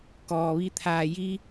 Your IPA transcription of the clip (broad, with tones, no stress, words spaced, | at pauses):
kɔː˩ʋi˧ t̪ʰaː˩ ji˧